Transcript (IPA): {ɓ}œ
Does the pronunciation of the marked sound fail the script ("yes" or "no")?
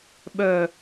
no